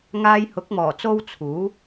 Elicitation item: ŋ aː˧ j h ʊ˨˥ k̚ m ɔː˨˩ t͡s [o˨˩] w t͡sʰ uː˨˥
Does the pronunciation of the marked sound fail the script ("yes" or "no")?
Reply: yes